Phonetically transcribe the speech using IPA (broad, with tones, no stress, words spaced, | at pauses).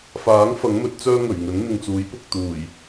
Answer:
faː˨˥ŋ fɐ˨˥ŋmɵ˨˥t̚t͡sœː˥ ŋɵ˨˩ɥŋɵ˨˥n n̪ɪ˨ŋt͡suː˨˥j pʊ˨k̚t̪uː˨˩j